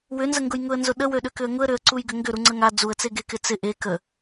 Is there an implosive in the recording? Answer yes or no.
yes